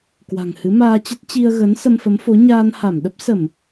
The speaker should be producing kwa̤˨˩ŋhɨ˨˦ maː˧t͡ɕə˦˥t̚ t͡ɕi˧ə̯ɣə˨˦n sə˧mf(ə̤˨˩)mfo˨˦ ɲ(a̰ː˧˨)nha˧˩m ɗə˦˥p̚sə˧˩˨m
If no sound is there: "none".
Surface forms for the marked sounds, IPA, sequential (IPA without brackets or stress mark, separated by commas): ə˨˦, aː˧